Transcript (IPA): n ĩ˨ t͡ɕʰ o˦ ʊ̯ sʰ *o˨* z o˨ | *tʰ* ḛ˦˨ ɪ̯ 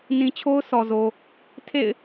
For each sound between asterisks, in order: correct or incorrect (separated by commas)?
incorrect, correct